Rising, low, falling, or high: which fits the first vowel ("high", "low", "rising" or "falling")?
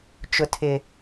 high